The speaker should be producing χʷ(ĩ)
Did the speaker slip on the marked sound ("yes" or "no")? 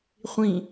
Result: no